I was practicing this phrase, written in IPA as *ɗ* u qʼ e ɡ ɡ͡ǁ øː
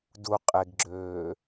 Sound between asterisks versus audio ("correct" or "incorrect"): incorrect